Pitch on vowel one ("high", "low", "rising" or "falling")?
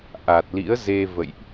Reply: low